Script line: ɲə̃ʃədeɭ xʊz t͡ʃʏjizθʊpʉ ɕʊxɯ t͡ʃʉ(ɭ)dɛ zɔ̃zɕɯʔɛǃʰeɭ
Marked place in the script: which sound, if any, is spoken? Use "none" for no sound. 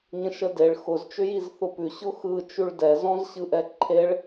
ɭ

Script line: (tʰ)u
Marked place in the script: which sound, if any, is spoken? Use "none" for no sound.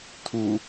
tʰ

